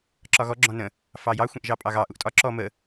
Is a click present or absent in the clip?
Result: present